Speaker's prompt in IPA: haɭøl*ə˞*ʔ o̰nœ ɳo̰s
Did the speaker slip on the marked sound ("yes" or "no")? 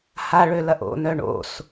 yes